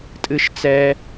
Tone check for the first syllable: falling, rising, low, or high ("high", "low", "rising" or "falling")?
high